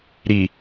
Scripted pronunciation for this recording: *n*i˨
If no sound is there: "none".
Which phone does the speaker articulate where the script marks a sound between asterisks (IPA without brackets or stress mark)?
ɾ